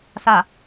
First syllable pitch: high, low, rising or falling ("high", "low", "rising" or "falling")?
low